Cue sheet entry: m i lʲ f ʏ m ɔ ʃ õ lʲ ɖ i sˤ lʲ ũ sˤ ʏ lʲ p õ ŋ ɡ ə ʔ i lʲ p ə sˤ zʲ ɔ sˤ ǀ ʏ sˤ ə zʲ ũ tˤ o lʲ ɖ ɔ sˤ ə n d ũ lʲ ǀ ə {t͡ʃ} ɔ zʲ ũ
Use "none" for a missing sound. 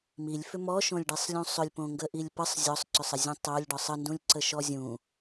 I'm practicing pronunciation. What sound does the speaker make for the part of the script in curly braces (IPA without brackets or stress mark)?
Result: ʃ